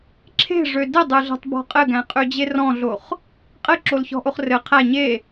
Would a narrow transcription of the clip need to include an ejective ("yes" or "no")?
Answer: yes